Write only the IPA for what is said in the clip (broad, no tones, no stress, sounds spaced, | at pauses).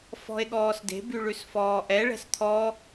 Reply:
f ɔ̤ e̯ ɠ ɔː s d e̤ b y ɭ ʉ s f ɔː ʔ ɛ ɭ ɛ̤ s t̪ʰ ɔ